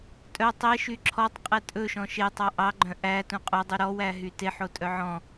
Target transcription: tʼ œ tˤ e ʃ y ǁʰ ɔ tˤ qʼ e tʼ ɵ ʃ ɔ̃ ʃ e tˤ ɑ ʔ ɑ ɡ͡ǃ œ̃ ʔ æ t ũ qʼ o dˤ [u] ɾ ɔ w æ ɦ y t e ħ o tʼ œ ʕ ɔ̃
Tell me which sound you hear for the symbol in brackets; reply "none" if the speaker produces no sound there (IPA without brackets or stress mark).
y